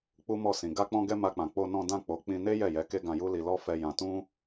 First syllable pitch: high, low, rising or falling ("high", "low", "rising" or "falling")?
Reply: high